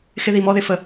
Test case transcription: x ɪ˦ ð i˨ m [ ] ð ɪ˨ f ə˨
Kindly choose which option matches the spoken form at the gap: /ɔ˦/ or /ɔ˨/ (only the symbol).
ɔ˦